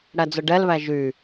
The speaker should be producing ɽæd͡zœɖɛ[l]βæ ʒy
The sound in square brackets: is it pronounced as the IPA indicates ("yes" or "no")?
yes